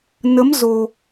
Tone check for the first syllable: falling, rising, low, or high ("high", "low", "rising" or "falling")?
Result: rising